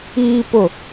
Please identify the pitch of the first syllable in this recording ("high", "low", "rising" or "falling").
low